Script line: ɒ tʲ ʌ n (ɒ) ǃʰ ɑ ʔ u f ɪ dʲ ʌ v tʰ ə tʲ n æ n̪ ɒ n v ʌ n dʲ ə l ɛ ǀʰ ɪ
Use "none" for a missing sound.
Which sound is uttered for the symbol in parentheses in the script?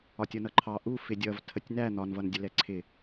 ʌ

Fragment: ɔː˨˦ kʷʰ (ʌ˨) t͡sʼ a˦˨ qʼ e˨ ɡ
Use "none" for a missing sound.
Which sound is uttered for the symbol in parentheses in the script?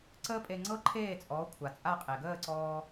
a˨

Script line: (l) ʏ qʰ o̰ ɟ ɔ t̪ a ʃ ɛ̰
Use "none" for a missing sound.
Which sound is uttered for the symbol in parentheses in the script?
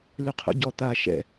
l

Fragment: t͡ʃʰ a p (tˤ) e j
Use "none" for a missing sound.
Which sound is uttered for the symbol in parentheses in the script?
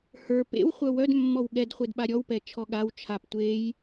tʷ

